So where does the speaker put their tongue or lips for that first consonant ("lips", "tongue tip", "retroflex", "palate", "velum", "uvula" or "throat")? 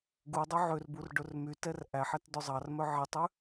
velum